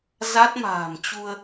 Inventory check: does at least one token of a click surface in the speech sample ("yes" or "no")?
no